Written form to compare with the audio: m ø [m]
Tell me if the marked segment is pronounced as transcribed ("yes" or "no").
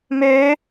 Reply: no